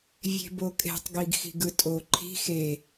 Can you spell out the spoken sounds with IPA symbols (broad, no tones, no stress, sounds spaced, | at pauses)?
vʲ e̤ b o kʼ e̤ tˤ ɡ i ɡ x i̤ ɡ ɯ tʼ o ǃʰ i̤ x e